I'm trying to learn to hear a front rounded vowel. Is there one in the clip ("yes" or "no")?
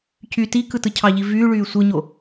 yes